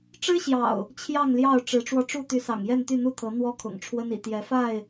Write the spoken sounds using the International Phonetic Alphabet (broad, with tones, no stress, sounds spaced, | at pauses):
ʈ͡ʂ ɻ̩˦ ɕ j ɑ̰˨˩ ʊ̯ | t͡ɕʰ j ɑ˥˨ ŋ l j ɑ˥˨ ʊ̯ ʈ͡ʂ ɻ̩˨˦ ʈ͡ʂ w ɔ˧ ʈ͡ʂ u˥˨ t̪ y˨˦ s ɑ̰˨˩ ŋ j ɛ˥˨ n t̪ y˥˨ n̪ u˥˨ t̪ʰ ɤ˨˦ n̪ w ɔ˦ kʰ ʊ̰˨˩ ŋ ʈ͡ʂʰ w ə˦ n ḭ˨˩ t̪ j ɛ˨˦ f a˥˨ ɪ̯